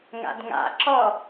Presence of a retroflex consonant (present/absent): absent